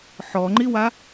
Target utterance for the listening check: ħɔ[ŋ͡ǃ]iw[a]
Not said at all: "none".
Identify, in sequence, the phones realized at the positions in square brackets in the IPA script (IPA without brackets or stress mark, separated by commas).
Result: ŋ͡ǃ, a